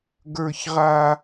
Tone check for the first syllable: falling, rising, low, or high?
low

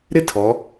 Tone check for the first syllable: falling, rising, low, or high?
high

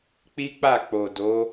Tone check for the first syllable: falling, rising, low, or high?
high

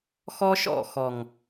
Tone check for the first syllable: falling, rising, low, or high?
high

